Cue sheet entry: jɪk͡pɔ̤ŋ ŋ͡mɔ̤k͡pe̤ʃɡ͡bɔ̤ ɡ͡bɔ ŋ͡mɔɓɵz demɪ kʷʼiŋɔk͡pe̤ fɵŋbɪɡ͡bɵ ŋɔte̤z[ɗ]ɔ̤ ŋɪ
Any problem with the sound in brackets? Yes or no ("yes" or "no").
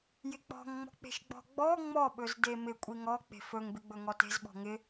yes